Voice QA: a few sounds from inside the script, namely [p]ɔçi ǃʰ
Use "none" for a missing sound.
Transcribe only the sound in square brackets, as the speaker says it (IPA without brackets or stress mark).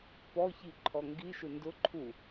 p